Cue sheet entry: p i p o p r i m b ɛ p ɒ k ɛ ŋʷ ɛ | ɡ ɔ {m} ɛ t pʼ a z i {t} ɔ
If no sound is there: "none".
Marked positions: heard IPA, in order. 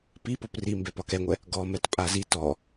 m, t

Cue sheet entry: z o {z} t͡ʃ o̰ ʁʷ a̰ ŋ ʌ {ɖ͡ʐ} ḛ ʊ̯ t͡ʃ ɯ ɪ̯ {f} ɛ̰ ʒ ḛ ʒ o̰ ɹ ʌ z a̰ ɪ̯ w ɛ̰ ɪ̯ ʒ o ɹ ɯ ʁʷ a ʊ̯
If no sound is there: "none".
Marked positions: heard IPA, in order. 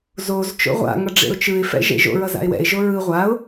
z, ɖ͡ʐ, f

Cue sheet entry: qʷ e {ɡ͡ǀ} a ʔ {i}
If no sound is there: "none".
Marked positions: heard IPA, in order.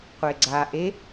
ɡ͡ǀ, e

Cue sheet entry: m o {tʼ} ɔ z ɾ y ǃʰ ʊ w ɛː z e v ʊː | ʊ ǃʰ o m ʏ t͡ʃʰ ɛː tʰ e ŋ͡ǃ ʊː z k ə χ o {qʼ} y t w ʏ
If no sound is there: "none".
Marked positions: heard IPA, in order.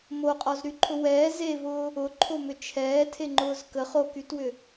qʼ, k

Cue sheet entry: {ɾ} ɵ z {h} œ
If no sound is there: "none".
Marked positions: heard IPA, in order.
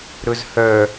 ɾ, h

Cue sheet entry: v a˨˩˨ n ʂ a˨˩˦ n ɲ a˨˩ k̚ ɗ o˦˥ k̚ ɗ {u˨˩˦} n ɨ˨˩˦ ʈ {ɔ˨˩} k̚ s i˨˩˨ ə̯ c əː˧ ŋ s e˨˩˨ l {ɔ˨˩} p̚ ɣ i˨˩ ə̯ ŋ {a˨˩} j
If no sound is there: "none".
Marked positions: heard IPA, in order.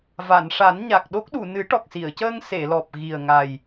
u˨˩˨, ɔ˨˩, ɔ˨˩, a˨˩

